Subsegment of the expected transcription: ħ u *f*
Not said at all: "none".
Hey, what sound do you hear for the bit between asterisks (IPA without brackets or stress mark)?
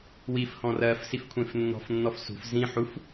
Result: f